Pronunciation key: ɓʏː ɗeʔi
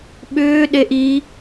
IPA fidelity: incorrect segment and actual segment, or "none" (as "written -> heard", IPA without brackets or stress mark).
none